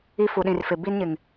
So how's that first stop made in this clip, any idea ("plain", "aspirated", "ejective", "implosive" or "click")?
implosive